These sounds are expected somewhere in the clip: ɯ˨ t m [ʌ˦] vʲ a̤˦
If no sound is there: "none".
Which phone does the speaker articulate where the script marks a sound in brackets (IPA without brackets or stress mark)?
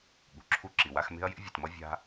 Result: ʌ˦